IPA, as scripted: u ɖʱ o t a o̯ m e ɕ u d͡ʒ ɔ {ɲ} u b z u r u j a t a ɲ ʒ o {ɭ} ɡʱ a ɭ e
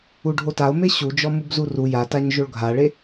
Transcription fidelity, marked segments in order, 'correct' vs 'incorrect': incorrect, correct

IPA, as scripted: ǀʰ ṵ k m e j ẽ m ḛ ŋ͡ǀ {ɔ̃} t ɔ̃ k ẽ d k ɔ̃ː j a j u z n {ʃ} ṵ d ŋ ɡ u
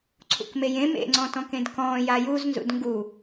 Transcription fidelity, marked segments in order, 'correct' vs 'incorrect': correct, incorrect

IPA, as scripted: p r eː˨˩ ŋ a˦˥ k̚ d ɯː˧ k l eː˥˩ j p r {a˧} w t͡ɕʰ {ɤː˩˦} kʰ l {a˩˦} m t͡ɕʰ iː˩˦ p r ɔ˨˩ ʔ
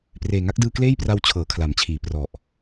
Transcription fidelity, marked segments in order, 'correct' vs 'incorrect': correct, correct, correct

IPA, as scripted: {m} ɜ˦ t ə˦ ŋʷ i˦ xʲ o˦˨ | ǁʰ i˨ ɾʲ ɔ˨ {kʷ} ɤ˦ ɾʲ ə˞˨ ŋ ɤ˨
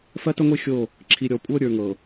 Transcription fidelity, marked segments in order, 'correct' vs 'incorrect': incorrect, incorrect

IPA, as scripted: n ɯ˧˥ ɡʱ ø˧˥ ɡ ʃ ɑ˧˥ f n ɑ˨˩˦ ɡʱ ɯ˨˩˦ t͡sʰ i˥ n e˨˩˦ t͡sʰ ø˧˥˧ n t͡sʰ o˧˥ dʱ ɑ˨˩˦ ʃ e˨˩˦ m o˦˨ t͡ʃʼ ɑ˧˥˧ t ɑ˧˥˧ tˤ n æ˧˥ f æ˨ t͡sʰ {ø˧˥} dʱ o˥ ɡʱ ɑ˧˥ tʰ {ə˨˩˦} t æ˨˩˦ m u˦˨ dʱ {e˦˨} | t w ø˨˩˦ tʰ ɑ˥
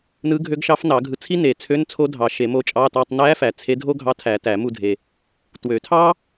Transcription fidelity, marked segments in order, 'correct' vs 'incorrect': incorrect, incorrect, incorrect

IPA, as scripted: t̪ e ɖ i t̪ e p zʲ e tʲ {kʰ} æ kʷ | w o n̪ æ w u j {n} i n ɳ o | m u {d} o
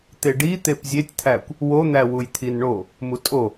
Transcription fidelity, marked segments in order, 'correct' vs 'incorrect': incorrect, incorrect, incorrect

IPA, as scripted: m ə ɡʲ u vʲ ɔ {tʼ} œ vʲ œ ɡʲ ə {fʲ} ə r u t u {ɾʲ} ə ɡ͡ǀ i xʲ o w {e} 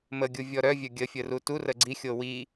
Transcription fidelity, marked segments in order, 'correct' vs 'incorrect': incorrect, correct, incorrect, incorrect

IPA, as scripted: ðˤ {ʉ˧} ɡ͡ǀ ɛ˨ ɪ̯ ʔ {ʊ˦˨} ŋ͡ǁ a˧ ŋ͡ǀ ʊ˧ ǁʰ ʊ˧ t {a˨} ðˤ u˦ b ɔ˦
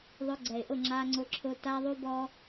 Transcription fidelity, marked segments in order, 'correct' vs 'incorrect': incorrect, correct, incorrect

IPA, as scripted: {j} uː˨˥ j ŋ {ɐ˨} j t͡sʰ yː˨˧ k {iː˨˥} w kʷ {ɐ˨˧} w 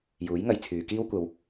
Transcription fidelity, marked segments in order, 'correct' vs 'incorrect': correct, correct, incorrect, correct

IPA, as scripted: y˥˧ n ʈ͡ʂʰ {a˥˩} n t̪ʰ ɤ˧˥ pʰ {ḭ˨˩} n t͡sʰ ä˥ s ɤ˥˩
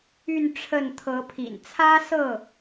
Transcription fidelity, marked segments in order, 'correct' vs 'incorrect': incorrect, correct

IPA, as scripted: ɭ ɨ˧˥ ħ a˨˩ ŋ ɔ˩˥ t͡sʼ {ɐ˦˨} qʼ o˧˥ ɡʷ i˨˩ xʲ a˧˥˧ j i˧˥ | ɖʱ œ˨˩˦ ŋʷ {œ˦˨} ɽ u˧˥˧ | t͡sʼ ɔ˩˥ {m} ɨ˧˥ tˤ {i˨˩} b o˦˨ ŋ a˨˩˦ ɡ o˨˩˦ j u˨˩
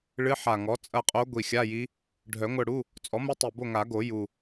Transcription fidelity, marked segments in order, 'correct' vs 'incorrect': correct, correct, correct, correct

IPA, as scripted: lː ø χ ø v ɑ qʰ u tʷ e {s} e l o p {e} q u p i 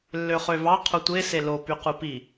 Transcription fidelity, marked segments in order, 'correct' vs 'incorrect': correct, incorrect

